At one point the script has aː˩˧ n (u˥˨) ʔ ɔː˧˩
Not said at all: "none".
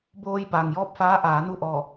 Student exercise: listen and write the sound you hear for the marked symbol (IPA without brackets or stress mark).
u˥˨